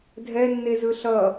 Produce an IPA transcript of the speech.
dʱ ɛ nː e z ɯ ɬ ʌ

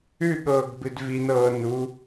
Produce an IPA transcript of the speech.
ʉ ɠ ɤː ɡ b ɨ d v i n ɤː n u

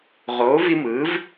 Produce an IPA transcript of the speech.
ʁ oː˨˥ v i˦ m ɯ˨˥ v

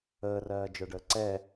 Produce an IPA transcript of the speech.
əː r ɜː d͡ʒ ə˞ ɖ əː ǀ ɛ

